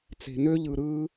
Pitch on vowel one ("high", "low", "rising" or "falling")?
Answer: low